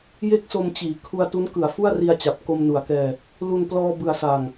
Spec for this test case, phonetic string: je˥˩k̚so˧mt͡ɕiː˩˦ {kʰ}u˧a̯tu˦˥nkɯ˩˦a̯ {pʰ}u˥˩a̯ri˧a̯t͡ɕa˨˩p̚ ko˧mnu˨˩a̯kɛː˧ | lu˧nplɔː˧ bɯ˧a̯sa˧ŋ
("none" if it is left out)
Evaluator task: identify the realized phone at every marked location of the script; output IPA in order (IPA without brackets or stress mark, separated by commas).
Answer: kʰ, f